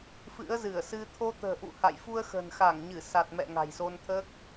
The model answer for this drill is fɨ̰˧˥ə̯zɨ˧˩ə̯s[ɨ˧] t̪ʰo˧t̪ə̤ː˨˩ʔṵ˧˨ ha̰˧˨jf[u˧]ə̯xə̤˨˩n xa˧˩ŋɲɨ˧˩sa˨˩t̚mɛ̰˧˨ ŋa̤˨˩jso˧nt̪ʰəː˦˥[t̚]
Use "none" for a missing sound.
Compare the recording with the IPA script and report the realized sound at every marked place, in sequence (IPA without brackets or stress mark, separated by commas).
ɨ˧, u˧, k̚